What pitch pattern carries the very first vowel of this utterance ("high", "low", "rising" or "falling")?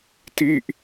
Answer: falling